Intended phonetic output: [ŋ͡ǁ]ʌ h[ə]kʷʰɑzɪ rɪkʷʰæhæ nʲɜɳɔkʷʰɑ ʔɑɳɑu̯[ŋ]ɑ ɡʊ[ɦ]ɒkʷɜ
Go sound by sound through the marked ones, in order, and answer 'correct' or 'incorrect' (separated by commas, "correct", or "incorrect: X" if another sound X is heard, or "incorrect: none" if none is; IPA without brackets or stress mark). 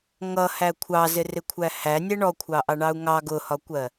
incorrect: ŋ, incorrect: æ, correct, incorrect: h